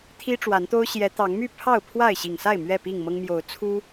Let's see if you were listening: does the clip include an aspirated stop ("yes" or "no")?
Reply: yes